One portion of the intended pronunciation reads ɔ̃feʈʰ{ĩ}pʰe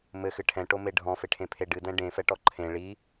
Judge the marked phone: incorrect: ẽ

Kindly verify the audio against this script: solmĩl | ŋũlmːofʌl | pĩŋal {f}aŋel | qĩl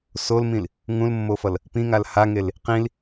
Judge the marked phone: incorrect: h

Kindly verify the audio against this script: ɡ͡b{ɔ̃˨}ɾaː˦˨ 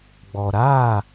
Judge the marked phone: incorrect: ɔ˨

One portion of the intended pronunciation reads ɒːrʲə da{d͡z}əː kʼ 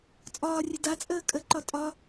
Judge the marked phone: incorrect: t͡sʼ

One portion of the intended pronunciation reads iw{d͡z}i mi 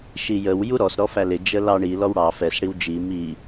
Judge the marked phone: incorrect: d͡ʒ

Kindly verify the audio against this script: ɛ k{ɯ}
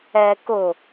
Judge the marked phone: incorrect: ʊ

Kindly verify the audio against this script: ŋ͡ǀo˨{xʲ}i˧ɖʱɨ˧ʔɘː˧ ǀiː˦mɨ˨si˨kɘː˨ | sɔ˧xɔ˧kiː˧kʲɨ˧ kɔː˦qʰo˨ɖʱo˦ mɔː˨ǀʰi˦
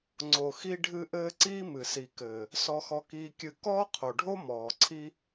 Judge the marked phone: incorrect: x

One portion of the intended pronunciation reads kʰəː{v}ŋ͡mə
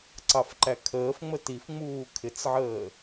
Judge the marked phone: incorrect: f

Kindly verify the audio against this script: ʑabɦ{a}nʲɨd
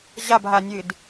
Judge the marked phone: correct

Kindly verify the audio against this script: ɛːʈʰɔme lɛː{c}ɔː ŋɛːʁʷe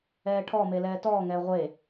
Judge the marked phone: incorrect: t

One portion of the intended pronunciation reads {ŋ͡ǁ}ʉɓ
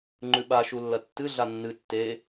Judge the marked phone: incorrect: ŋ͡ǃ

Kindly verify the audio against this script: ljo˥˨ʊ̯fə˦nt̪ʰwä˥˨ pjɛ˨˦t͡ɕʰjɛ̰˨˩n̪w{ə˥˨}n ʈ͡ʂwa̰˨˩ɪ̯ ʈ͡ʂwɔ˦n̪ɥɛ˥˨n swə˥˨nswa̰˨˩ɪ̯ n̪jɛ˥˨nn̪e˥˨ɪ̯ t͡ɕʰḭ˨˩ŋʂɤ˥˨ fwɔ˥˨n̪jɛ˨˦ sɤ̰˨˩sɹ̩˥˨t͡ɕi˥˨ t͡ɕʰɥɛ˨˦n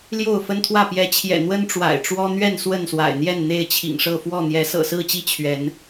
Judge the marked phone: incorrect: ə˦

